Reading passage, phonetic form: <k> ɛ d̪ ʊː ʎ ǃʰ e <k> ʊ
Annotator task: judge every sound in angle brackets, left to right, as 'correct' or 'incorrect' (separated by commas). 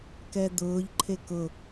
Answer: correct, correct